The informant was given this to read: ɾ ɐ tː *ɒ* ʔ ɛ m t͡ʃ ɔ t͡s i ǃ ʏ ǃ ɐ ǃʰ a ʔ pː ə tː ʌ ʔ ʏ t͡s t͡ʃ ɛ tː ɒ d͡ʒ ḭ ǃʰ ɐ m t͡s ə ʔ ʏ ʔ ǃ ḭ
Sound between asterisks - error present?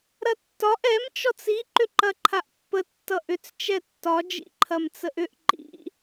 no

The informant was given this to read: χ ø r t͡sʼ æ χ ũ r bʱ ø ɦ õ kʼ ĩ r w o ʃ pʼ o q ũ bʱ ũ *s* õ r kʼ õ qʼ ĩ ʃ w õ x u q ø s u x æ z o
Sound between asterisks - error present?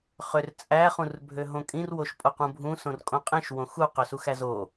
no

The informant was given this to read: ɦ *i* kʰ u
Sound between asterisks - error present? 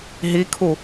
no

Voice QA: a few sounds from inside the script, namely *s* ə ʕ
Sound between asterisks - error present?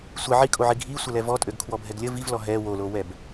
yes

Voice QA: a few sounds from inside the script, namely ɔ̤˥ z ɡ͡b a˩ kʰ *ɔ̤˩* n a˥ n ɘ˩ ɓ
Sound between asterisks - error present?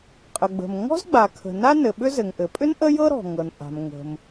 yes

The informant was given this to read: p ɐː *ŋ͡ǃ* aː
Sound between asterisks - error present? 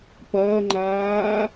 no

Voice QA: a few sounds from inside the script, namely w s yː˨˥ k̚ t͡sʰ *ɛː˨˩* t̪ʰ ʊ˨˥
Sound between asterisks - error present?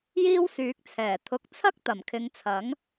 no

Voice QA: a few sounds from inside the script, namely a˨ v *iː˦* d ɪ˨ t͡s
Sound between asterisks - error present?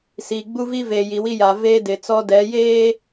yes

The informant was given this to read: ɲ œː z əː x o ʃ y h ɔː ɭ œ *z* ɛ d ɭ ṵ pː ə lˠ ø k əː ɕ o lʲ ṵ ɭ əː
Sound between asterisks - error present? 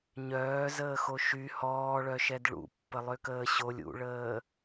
yes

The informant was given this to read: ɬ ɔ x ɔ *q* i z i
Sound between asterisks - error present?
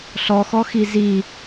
yes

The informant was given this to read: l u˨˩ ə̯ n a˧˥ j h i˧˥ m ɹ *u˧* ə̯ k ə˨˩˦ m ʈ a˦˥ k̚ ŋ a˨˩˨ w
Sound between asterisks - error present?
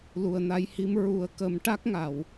yes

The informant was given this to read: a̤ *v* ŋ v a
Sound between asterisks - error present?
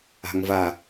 yes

